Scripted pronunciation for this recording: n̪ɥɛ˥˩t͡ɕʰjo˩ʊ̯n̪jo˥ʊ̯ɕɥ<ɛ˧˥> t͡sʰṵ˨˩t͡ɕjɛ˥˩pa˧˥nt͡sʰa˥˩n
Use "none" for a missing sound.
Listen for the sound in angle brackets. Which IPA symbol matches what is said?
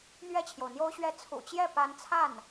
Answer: ɛ˥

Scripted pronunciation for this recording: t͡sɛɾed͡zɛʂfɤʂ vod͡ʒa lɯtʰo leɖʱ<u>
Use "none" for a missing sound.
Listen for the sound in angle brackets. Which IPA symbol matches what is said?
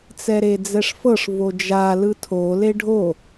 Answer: o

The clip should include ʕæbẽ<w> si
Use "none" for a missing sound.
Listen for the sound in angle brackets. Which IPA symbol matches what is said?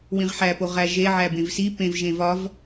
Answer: v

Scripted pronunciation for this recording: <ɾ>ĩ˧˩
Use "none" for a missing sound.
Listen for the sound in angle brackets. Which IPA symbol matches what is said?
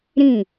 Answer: ɾ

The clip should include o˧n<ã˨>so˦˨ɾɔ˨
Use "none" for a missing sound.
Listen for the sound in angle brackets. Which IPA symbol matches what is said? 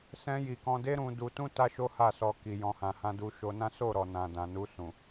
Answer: ã˦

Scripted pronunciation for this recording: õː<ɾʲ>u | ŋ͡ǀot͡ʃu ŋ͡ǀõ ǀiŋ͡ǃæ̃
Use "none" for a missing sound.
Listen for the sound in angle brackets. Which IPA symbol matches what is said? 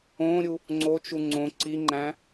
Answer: ɾʲ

